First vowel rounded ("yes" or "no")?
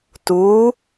yes